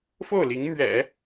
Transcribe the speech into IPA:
f o˥˩ ʊ̯ l i˧˥ ŋ m ɥ ɛ̰˨˩˦

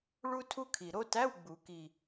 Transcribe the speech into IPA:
ɭ u˥ tʰ u˥ kʰ i˨˩ ɾ o˥ t æ˧˥˧ w ɡ͡b u˨˩˦ k i˨˩

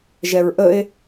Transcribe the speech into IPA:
ʒ ɛ ɹ ʔ ə e̯

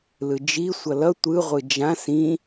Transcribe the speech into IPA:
l ɯ d͡ʒ i sʷ ʌ l ʌ tʷ ɯ ʁʷ ɯ d͡ʒ ã s ĩ

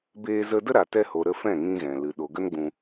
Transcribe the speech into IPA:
b eː˧ z ə˧ d ə˦ ɾ a˨ t ɛ˧ h o˨ ɾ ə˧ f ɛ̃˦˨ ŋ ĩ˧ ɣ ɛ̃˨ l ɨ˨ ɗ o˨ ɡ ə˦ n ɡ͡b ũ˧

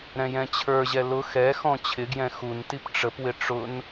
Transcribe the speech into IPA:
ɾ ɛ̃ j ɛ̃ t͡ɕʰ ə˞ ʑ ɛ l ʊ x ɛ x ɔ̃ t͡ɕʰ ɪ ɡ j ɛ̃ x u n t i p ʈ͡ʂ ə p w ɪ ʈ͡ʂ ʊ n

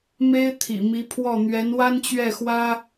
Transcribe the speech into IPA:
m e˥ ɪ̯ t̪ʰ ḭ˨˩ m i˧˥ pʰ w ɔ˥˩ n̪ ɥ ɛ˧˥ n w a˥ n t͡ɕ ɥ ɛ˥˩ x w ä˥

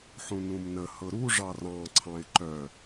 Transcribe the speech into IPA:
ħ ũ n ũ m n ə h ɤ ɾ u ʐ ɑ r ɑ̃ ǀʰ ɑ̃ ɪ̯ ǃ œ

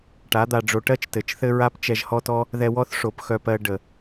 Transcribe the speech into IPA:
ʈ a˨˦ d̪ a˧ ɖ͡ʐ o˧ ʈ ɜ˦ t͡ʃ t ɘ˨ t͡ʃ θ ɘ˦ ɹ a˦ p t͡ʃ ɛ˧ ʒ h ɔ˦ t ɔ˦ | ð ɛ˧ w ɔ˦ θ ʂ o˧ p x œ˦ p ɜ˦ ɖ ə˨

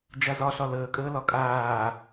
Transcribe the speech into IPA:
d͡ʒ a z ɒ ɬ ɒ l əː kʼ əː l ɒ kʼ aː

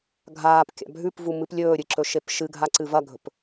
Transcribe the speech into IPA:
ɡʱ aː p kʲ a̰ bʱ ʉ p v u m ɨ p lʲ ɵː ɾʲ ɨ ǁ ɵ ʃ e p ʃ ɨ ɡʱ a ǀ ɨ v ɐ ɡʱ ɵ p

